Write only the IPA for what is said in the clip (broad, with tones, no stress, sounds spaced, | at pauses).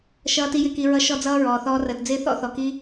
ʃ ʌː˨ t i˨ j ɪː˨ k i˨ ɹ ʌ˧ ʃ ɔ˧ d͡z ʌː˧ ɹ ɔː˨ θ ɔː˧ r əː˨ t d͡z ɪː˦ θ ɔ̰˦ θ ɔ˨ k iː˦